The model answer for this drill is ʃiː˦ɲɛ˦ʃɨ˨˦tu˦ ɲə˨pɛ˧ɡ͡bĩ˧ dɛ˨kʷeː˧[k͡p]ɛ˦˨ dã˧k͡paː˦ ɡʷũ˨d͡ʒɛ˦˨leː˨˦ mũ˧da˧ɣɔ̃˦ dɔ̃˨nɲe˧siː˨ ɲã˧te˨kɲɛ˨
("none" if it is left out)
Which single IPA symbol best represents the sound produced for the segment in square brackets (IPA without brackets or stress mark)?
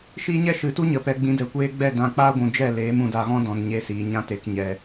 ɡ͡b